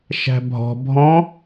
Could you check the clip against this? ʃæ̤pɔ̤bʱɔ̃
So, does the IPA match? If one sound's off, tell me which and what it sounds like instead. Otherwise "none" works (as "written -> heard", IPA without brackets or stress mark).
p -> bʱ